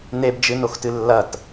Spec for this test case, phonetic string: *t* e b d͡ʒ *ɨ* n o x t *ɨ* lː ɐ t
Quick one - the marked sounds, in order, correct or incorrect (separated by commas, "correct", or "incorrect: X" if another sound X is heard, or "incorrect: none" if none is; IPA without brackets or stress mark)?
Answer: incorrect: n, correct, correct